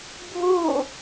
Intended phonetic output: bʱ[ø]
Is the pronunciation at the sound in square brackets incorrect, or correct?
incorrect